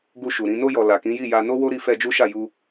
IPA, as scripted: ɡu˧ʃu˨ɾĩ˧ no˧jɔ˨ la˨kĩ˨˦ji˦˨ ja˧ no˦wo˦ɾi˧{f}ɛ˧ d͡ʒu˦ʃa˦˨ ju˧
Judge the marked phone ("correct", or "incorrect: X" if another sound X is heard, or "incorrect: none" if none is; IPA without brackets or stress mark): correct